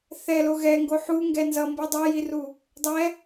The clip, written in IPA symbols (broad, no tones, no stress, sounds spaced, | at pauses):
θ ɛ l o ɣ ɛ ŋ ɡ o ħ u ŋ ɡ ɛ n z ʌ m b ɯ dˤ ɛ j i r u | dˤ ɛ